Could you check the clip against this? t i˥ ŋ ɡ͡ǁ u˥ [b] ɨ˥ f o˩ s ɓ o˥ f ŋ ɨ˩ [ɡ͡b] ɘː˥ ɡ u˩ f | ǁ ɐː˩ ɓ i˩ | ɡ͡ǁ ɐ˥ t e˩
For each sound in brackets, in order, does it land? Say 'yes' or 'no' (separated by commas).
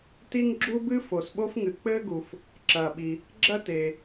yes, no